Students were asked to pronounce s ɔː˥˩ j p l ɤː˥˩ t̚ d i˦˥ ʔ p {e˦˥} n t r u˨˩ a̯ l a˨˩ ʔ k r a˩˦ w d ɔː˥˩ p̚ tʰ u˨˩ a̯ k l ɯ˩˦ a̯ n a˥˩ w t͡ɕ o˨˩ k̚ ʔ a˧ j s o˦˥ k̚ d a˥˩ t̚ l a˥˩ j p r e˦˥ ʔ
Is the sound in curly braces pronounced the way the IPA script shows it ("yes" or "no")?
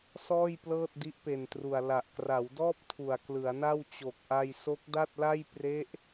no